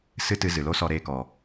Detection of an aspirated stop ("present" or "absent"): absent